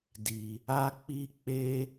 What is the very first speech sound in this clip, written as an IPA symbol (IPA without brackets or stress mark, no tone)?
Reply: d